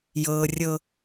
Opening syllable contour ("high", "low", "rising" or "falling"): high